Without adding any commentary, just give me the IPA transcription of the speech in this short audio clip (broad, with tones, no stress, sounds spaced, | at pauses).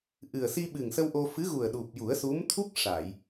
ʔ ɨ˨˩ ə̯ s i˧ ɓ ɨ˨˩ ŋ s ə˧ w ʔ o˧ f ɨ˧˥ ɣ u˨˩ ə̯ ɗ u˨˩ p̚ j u˨˩˦ ə̯ s u˧˥ m t̪ʰ u˦˥ k̚ ʂ a˨˩˨ j